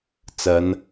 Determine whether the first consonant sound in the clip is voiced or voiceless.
voiceless